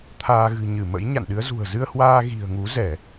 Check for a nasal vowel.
absent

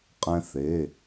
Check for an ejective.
present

